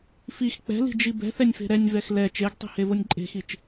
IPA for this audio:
f i x k͡p ɛ̤ l i̤ d͡ʒ i b ɛ̤ θ ɛ nʲ f e̤ ɾ ɛ nʲ v ɛ x l ɛ t͡ʃ e ɡ tˤ i̤ h e v o nʲ ǃʼ e̤ x i t͡ʃ

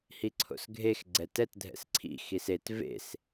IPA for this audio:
h i ǀʰ o̰ s ɡʱ e x ɡ͡ǀ ɛ t ɛ t dʱ ɛ̰ s ǀʰ ḭ x i s e t v ḛ s

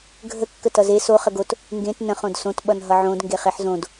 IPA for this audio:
ɡʱ ə kː ə t ʌ z e s o χ ə ɡ o t | ŋ ɡ ẽ t n ə̃ χ õ d s õ t ɓ ʌ n ɦ ʌ ʕ õ d ŋ ɡ e χ e ħ z õ d

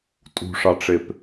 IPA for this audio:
tʼ ṳ ʂ ɑ ʈ͡ʂ e p

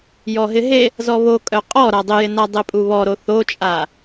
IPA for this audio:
j ɔ ɦ ɪ ɦ e | z ɔ β o kʼ œ qʼ ɔ ɾ a dˤ ɪ j ɪ n a dˤ e pʼ u β ɔ ɾ o θ o t͡ʃʼ a

